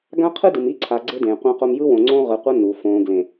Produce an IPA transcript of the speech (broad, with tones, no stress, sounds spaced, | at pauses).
ɡ ã˦ qʰ ɯ˦ d ɯ˨ m i˦ ǀʰ a˨ ɡ͡ǀ e˦ d ẽː˨ qʷ ã˦ q o˦ m j ɯ˦ w õ˨ ŋ͡ǀ õ˦ ʁ ɯ˨ qʷ ʌ˦ n u˨ f õː˨ ɡ l ẽ˨